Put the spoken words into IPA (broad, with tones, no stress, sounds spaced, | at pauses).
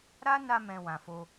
ɾ a˦ n a˧ m ɛ̃˧ w ã˨ f o˧